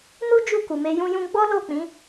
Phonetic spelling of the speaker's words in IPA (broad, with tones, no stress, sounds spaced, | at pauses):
n u˦ d͡ʒ u˦˨ k u˨ m e˧ j ũ˧ j ũ˧ ɡ͡b ɔ˦ l o˦˨ k͡p ĩ˨˦